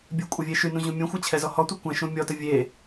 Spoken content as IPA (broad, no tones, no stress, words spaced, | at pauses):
bʲəkʷʼɪvʲe ʃynũʑũ mʲõxʷæt͡ɕʰɛzɔ hɔtʷɪ kʷæ̃ ʃũ mʲɔtə vʲe